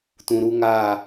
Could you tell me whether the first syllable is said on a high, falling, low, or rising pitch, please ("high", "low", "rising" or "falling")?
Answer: low